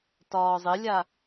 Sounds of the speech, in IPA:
tɒːzˤɪlʲa

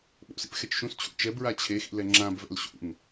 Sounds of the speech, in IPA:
ɓo̰sḭp xɛt͡ʃʃũst͡ɕʰṵ t͡ʃɛbɹa t͡ɕʰexḭ lɛŋ͡ǁãbvɛ̰l ɕṵn

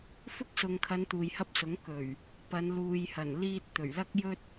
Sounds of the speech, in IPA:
fʊ˥k̚sʊ˨ŋkʰɐ˨˧n t̪uː˨jhɐ˥p̚sʊ˨˥ŋ kɵ˨˩ɥ | pɐ˨˧n luː˨jhɐ˨˩nliː˧t̚ t̪ɵ˨˩ɥlɐ˥k̚jɵ˥t̚

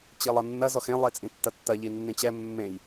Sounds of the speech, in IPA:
t͡ɕilˠʌnːɐ zɔxẽ lˠet͡sʼĩtːɐtːɐ ʎinːĩt͡ɕɛ mːẽj

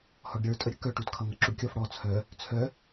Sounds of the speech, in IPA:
hɔɖɾʲə˞ tʼəɾʲəkœʈut kʰʌŋʌǁuɖkʲɔf ɽɔ t͡sʰœ | t͡sʰœ

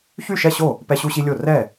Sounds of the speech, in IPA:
çy˥˩ʃɛ˥˩ɕo˥˩ | pɛ˦ɕu˦ɕi˦lʲo˥˩ rɛ˥˩

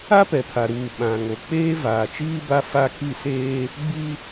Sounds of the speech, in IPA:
a˦pɛ˨pʰa˨ ɾuː˨ɓã˨ ŋo˨k͡peː˦ vaː˨t͡ʃiː˦ba˦ fa˦ ki˦˨seː˦ | ɡ͡bi˦

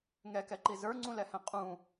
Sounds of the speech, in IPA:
ŋɛkɛǃi zə˞ŋ͡ǀũlɛhɛ̃ qʼũ

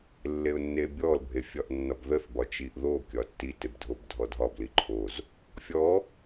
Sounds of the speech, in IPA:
lːeʊ̯nːebʲɔl bʱefʲɒʔnːɒbðəθ bɒt͡ʃiʔðo kʲɒtːi tebdʱobdʱɔdʱɒb liǃʰoz | fʲɔ

